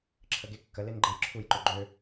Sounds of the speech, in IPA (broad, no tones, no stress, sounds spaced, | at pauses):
ǁʰ ə ɡ e kː ə l e n ɡ͡ǃ e j ǁʰ u j ǃ ø ɡ͡ǃ ø